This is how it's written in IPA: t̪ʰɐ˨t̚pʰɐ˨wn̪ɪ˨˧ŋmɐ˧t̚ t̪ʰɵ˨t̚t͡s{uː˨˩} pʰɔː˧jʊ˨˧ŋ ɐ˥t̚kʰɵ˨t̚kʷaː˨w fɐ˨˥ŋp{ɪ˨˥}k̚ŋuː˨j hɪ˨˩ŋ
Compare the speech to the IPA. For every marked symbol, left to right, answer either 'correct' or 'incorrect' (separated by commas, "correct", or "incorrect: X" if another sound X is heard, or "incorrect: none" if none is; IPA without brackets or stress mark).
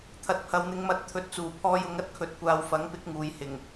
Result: correct, correct